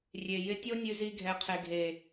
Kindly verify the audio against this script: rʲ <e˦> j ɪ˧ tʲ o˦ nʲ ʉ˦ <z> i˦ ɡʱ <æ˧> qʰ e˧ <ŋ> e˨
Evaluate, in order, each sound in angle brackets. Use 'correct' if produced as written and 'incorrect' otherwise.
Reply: incorrect, correct, incorrect, incorrect

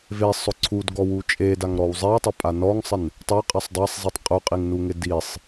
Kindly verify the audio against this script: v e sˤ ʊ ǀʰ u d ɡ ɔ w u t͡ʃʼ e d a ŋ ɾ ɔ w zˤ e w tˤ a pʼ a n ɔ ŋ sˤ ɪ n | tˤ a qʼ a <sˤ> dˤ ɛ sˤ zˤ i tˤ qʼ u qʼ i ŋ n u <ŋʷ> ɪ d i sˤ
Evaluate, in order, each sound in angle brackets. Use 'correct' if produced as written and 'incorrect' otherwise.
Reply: correct, incorrect

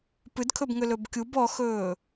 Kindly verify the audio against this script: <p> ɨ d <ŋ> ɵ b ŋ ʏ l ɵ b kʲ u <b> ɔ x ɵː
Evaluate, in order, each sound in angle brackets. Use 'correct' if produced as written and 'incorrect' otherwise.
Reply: correct, incorrect, correct

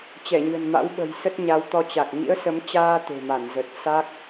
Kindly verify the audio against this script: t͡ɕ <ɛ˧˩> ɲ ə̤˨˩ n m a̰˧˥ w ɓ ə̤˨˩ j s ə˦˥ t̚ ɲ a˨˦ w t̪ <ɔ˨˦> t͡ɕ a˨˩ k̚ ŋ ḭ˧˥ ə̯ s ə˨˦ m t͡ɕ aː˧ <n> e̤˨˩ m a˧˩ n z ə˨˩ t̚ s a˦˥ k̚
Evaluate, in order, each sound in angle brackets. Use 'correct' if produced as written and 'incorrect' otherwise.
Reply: correct, incorrect, incorrect

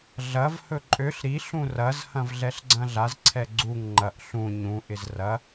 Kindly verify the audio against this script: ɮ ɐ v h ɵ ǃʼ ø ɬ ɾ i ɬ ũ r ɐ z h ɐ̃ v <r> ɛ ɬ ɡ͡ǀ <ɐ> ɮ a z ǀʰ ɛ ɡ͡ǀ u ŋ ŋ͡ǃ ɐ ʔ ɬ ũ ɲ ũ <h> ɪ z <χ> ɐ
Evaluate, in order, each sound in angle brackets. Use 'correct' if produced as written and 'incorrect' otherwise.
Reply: incorrect, incorrect, incorrect, incorrect

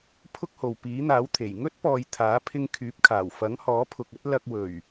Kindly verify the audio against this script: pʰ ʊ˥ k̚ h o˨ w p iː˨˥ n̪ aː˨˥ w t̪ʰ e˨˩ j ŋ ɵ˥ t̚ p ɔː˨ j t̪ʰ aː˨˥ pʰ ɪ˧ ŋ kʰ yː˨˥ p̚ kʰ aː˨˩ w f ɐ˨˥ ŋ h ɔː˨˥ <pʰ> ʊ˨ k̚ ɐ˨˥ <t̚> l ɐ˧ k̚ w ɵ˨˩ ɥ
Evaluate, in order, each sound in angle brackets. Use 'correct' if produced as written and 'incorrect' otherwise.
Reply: correct, correct

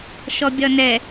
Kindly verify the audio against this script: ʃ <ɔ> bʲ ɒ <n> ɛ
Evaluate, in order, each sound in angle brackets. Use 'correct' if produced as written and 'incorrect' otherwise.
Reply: correct, correct

